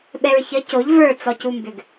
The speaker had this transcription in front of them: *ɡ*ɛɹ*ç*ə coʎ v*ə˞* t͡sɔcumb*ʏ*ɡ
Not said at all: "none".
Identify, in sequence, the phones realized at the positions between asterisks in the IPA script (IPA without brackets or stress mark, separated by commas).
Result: ɓ, ç, ə˞, ʏ